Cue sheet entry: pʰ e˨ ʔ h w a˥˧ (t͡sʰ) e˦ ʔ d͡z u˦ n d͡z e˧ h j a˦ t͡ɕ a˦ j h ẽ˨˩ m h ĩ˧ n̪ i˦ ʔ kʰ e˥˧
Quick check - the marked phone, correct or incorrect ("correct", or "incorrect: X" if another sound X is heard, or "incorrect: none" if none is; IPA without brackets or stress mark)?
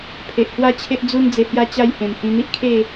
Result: incorrect: t͡ɕʰ